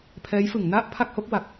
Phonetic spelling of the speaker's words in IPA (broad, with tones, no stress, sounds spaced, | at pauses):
pʰ ɛː˦˥ j f ɯ˩˦ ŋ n a˥˩ ʔ pʰ a˥˩ k̚ h o˦˥ k̚ w a˨˩ k̚